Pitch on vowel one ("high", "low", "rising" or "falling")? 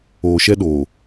low